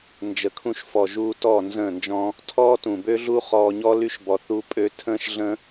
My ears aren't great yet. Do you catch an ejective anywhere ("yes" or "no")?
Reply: yes